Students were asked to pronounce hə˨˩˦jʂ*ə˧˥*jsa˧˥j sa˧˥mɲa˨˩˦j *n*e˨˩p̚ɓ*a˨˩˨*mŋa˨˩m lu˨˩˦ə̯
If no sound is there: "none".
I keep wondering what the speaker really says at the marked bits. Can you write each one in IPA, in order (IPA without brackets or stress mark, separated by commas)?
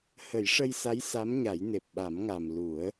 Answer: ə˧, n, a˨˩˦